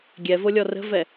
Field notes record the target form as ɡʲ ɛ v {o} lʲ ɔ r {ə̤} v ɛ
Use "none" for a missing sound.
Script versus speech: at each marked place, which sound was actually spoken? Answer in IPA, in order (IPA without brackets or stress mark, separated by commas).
o, ə̤